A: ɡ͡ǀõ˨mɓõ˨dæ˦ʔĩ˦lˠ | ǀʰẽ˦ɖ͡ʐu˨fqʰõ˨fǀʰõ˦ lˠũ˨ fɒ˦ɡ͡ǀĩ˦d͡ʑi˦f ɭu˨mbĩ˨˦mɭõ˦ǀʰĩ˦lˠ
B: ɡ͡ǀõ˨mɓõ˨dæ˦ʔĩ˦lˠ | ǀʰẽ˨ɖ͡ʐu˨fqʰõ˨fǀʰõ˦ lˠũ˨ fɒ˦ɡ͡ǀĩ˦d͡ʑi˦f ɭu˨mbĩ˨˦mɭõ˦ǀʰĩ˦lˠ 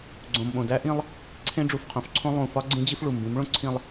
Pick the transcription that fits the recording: A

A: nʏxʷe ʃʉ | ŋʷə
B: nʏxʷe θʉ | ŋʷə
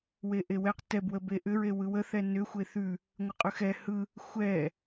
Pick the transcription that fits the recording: B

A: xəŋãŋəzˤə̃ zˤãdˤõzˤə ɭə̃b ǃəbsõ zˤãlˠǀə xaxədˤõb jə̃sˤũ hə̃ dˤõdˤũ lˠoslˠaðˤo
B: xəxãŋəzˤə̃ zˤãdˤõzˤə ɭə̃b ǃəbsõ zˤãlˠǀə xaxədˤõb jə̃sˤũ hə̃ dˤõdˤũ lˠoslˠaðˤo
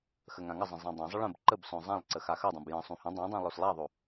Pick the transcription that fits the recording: A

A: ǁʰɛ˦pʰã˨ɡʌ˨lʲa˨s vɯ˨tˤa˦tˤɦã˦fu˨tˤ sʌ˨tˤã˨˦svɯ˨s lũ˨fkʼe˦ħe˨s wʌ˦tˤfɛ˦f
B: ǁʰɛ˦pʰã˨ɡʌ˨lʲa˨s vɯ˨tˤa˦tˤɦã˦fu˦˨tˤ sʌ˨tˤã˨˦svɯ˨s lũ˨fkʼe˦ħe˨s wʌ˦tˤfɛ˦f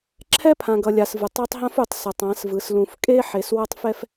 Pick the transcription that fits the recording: A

